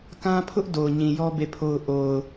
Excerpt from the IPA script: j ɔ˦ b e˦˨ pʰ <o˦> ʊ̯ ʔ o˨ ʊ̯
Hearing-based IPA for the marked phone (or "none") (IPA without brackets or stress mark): o˦